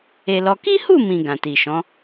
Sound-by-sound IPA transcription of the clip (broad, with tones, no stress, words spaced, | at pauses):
e˧lɔ˧ ki˦hu˦˨mĩ˨ ɡã˨ti˨ʃɔ̃˨˦